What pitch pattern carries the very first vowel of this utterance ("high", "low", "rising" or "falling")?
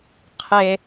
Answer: high